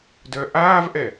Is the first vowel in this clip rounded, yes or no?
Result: yes